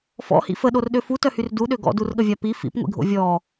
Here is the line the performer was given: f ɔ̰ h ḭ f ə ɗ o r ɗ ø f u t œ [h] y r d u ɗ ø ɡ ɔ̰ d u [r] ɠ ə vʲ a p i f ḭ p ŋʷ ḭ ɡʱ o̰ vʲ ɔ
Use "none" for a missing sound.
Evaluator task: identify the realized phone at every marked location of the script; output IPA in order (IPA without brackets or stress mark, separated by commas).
h, r